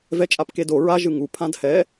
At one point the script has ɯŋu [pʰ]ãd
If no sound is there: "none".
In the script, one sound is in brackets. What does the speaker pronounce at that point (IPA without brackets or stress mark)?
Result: pʰ